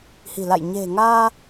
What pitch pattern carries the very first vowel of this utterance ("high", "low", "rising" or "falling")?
low